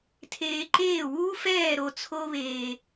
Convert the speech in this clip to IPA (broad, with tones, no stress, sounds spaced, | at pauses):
tʰ eː˧ ǃ eː˦˨ w uː˦ f ɛː˦˨ ɾ o˧ t͡sʰ o˦ β eː˧